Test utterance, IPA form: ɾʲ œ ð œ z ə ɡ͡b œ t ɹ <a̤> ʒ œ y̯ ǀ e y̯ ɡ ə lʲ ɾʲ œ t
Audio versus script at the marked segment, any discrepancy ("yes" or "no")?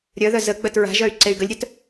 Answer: no